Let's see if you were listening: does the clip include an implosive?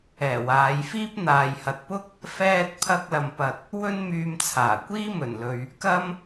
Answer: no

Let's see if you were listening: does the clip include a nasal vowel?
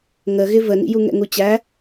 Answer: no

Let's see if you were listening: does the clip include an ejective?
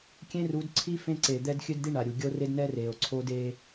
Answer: no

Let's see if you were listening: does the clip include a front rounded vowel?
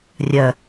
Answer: yes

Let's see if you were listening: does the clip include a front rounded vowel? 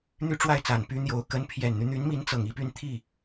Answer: yes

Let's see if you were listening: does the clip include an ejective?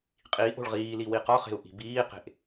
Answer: yes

